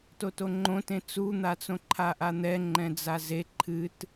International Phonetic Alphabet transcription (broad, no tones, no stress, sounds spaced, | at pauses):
t o t o ŋ͡ǃ õ t ẽ t͡s u n̪ a t͡s õ ǃʰ a ʔ a n̪ ɛ ŋ͡ǃ ɛ̃ d͡z a z e ǃʰ ɨ t